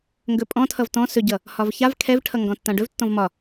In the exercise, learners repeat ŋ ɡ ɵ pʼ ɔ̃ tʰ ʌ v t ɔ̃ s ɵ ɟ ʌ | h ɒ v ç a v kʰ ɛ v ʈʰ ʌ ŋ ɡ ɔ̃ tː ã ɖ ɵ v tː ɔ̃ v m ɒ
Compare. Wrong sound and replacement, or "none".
none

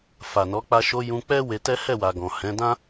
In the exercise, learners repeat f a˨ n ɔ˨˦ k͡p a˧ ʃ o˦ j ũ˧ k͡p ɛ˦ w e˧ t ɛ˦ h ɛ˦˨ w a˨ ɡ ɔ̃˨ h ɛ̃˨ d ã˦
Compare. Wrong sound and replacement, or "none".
ɛ̃˨ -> ɛ̃˨˦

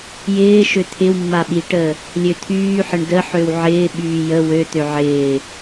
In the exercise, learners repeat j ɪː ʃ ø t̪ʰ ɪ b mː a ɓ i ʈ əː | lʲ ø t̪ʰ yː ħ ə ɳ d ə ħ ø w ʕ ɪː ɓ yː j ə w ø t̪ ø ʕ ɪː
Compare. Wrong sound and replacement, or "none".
b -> w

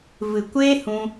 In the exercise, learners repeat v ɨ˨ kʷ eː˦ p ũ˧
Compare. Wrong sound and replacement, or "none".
p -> h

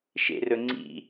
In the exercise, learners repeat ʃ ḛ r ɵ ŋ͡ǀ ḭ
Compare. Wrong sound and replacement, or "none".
none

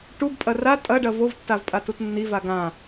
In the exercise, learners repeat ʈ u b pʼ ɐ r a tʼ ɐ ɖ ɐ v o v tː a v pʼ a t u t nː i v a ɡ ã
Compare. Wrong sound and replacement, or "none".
none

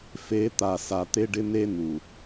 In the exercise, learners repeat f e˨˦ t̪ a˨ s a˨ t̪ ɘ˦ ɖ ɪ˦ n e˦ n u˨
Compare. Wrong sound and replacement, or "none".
ɘ˦ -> e˦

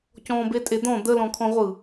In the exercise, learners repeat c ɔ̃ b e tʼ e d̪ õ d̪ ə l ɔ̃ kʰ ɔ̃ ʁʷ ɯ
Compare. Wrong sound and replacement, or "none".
õ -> ɔ̃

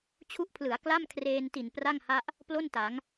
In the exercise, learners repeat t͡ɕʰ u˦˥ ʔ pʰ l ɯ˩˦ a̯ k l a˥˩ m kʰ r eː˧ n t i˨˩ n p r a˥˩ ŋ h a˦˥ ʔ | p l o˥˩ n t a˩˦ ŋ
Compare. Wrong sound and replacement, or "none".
none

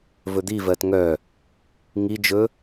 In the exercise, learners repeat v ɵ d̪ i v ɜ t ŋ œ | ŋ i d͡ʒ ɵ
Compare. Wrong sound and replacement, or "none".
none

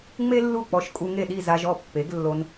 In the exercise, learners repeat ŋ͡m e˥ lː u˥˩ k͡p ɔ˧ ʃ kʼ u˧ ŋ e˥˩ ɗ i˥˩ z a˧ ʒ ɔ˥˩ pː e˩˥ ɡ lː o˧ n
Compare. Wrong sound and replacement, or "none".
none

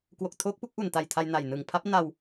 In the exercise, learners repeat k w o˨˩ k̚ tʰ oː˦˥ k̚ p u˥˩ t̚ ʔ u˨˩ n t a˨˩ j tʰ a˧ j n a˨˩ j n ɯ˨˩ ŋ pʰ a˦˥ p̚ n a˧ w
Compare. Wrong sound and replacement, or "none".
t̚ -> k̚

